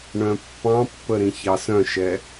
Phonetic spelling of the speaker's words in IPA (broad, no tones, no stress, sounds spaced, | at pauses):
ɳ œ̃ pː ɑ̃ pː ə ɾ ĩ ç ɑ s œ̃ ʃ ɛ